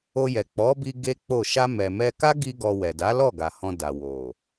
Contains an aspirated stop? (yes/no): no